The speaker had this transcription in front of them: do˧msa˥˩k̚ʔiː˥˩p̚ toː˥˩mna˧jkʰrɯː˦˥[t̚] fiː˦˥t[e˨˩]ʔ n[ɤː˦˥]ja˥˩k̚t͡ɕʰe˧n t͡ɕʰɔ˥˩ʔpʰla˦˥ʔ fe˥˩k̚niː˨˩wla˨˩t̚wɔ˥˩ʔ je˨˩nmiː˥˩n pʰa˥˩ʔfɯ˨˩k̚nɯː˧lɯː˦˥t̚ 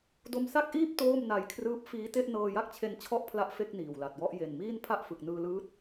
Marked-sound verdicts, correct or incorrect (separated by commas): incorrect, incorrect, incorrect